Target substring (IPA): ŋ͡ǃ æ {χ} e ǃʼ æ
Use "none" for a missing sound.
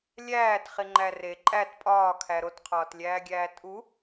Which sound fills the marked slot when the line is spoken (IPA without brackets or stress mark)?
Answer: r